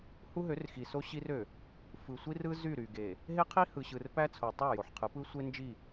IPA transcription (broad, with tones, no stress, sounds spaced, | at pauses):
h u˦ ɦ ø˨˦ r x i˨ s o˦ ɕ i˦ r ø˨ | f ɯ˨ sʷ i˦ r ɯ˦ z y˦˨ ɾ y˨ ɡ e˨ | ɦ e˦ qʰ i˦ h ɯ˨ ɕ ɯ˨ r p æ˦ t͡sʰ o˨ tˤ æ˦˨ j o˨ ħ qʰ ɯ˨˦ p ɯ˦ sʷ e˦ n d͡ʒ i˦˨